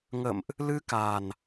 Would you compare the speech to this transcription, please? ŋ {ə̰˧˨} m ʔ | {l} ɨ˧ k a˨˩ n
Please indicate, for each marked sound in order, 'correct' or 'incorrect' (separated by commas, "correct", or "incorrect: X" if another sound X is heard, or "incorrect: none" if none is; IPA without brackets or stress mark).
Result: correct, correct